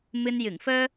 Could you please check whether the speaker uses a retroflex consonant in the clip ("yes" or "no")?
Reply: no